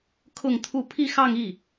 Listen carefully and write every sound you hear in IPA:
kʰ ʊ˥˧ ŋ t̪ʰ u˥˧ pʰ i˥˧ x ɑ˥˧ ŋ i˥˩

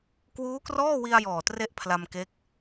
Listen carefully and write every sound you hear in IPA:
k w uː˦˥ k r ɔː˥˩ w i˧ a̯ j ɔː˨˩ t r e˥˩ ʔ pʰ l a˧ m k e˦˥ k̚

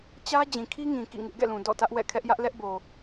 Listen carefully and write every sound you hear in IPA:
t͡ɕ ä˦ d͡ʑ ĩ˨ kʰ i˦ ŋ ĩ˨ k ḭ˦˨ ŋ ɪ˦ ʔ ɡ ɛ̰˦˨ l ũ˨ d ɔ̰˦˨ t ä˦ ʔ w ɛ̰˦˨ kʰ ɛ˦ ʔ j ä˦ ʔ l ɛ˦ ʔ b o˨

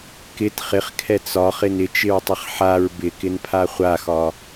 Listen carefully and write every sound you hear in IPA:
k ɪ t χ ɪ χ kʰ ɛ t͡s ɒ χ ɪ n ɪ t͡ʃ ɪ ɹ tˤ ɪ χ ħ a ɹ b ɪ k ɪ n pʰ a χʷ a x ɒ

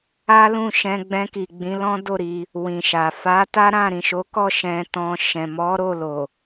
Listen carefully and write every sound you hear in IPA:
a˦ l ũ˦˨ ʃ ɛ̃˧ ɡ͡b ɛ̃˧ k i˨ ɡ͡b ĩ˨˦ l ɔ̃˦ d o˦˨ ɾ i˧ | w ĩ˨ ʃ a˨ f a˨˦ t a˦ ɾ ã˦˨ ɾ ĩ˨ ʃ o˨˦ k ɔ˦˨ ʃ ɛ̃˧ t ɔ̃˧ ʃ ɛ̃˨ m ɔ˨˦ ɾ o˦˨ l o˨

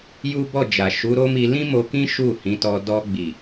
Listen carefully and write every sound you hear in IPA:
j u˦ b ɔ˦˨ d͡ʒ a˨ ʃ u˨˦ ɾ o˦ m i˧ l ĩ˦ m o˧ k ĩ˦ ʃ u˦˨ h ĩ˨˦ t ɔ˧ d ɔ˧ ɡ͡b i˨

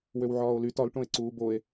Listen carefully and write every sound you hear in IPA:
w ø w ʕ ɒː o̯ l y t ɒ l ʈ õ e̯ ǀ uː b o e̯

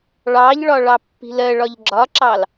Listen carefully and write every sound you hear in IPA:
ɭ ɑ ʎ ɭ ɒ ɭ ɑ pː i̤ l ɜ ɭ ɒ ʎ ɡ͡ǁ ɒ ǁ ɑ l

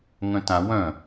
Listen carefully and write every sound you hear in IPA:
ŋ œ̃ t ã w œ̃

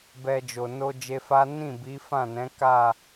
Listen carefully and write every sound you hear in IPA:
b ɛ˧ d͡ʒ o˨ n o˧ d͡ʒ e˧ f a˦ n ĩ˦˨ b i˨˦ f ã˦˨ n ɛ̃˨˦ k a˦˨

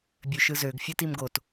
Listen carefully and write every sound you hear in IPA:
bʲ ø ʃ ɯ z ø ɡ fʲ ɯ t i m ɡ o t

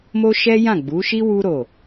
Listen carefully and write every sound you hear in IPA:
m o˦ ʃ ɛ˦ j ã˦˨ ɡ͡b u˨˦ ʃ i˦ w u˦ ɾ o˦˨

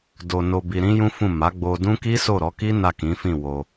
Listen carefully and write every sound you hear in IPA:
d o˧ n o˧ b i˧ ɾ ĩ˦ j ũ˦ f ũ˦˨ m a˨˦ ɡ͡b o˧ d ũ˦ k i˦ s o˦˨ ɾ ɔ˨˦ k i˦ n a˦˨ k ĩ˨˦ f ĩ˦˨ w o˧

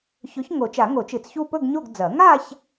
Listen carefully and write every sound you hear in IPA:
ç ɵ˨˥ ç ŋ o˨˩˦ t͡ʃ a˨˩˦ ŋ o˨˩˦ t͡ʃ ɨ˨˩˦ t͡s ç u˥˧ p ɵ˥˧ ɡ ɲ o˥˧ ɡ d͡z ɐ˨˩˦ ŋ a˥˧ ç

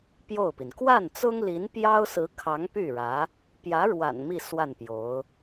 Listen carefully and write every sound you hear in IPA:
p j o˥˩ ʊ̯ p i˩ n k w a˥˩ n t͡s ʊ˥ ŋ l i˧˥ n p j ɑ˥ ʊ̯ s ɹ̩˧˥ kʰ ɑ˧˥ ŋ p y˥˩ ɻ ä˧˥ | p j ä˧˥ ɻ w a̰˨˩ n m i˥˧ s w a˥˩ n p j o˧˥ ʊ̯

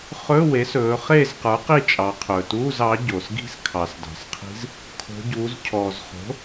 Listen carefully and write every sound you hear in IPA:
χ ɵ˧˥˧ w e˩˥ s ɵː˩˧ χ e˦˨ z q ə˞˩˥ q i˦˨ t͡ʃʼ ɑ˩˧ qʰ ɵː˩ t uː˧˥˧ z ɑ˩˥ ɟ o˩ s ɡ i̤˦˨ s kʰ ɑ˩ s d ɑ̤˩ s qʰ i̤˧˥ z | kʰ o̤˩˧ ɟ uː˩˧ z cʰ ɔː˩ z χ o̤˩˥

